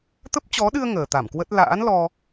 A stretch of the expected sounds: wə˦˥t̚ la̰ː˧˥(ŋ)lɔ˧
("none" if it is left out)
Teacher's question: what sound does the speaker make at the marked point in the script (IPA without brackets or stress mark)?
n